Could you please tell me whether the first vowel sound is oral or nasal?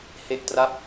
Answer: oral